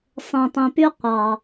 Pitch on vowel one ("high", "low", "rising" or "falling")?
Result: low